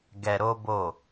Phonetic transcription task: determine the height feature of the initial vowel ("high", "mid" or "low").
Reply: mid